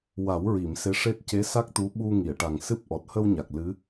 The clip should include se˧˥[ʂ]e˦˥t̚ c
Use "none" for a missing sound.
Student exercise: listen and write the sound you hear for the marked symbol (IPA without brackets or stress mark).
ʂ